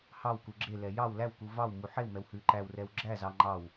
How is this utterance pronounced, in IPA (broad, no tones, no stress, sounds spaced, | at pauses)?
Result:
h ɑ w k u ɡ͡ǁ e l ɛ j ɑ w l æ w k u v ɑ w m u ħ e w m ɛ w h ʉ ǃ æ w r ɛ w ɡ͡ǁ æ z ɑ ŋ͡ǃ ɑ w